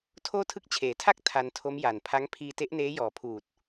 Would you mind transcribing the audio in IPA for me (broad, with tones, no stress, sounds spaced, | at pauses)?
tʰ oː˥˩ tʰ ɯ˥˩ k̚ t͡ɕʰ eː˩˦ tʰ a˥˩ k̚ tʰ a˧ n tʰ o˦˥ m j a˨˩ n pʰ a˦˥ ŋ pʰ iː˧ t e˦˥ ʔ n eː˦˥ j ɔː˨˩ pʰ uː˨˩ t̚